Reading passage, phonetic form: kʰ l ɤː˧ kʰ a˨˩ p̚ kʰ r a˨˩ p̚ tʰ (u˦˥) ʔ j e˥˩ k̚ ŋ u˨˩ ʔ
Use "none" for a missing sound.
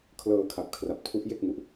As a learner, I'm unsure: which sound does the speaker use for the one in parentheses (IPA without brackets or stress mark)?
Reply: u˦˥